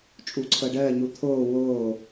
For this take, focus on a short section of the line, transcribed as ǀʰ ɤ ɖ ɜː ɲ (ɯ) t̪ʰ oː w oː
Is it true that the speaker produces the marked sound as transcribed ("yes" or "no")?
no